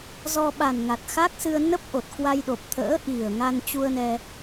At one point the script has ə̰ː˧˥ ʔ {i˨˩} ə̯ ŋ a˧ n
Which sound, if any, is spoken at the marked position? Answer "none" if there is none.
i˨˩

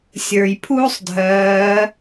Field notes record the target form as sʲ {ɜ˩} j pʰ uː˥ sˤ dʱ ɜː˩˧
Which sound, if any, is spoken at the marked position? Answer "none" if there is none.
ə˞˩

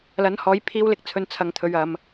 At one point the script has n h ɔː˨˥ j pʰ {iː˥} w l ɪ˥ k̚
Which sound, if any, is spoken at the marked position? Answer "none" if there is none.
iː˥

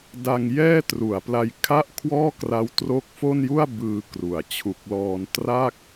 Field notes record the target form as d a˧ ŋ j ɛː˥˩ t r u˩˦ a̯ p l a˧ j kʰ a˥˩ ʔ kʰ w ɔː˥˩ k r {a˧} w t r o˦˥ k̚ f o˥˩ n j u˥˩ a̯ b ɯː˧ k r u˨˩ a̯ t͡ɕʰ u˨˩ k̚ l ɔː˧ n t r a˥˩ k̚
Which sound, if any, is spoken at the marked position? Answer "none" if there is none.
a˦˥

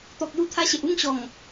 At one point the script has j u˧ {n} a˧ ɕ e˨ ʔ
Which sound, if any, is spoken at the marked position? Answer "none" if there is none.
t̪ʰ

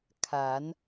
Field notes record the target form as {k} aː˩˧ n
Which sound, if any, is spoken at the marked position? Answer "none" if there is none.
kʰ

